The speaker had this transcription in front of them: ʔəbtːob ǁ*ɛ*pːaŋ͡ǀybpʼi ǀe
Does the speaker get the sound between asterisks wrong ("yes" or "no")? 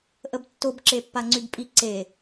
yes